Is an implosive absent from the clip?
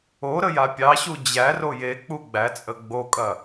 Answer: yes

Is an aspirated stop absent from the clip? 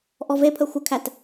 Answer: no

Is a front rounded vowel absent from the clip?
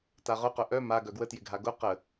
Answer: no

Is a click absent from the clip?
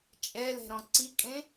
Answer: no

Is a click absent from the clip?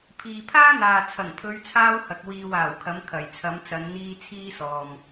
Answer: yes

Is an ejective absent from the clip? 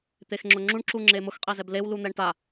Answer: no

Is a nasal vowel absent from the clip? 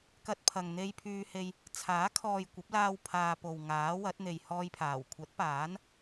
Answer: yes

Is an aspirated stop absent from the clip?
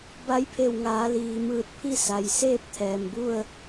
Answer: no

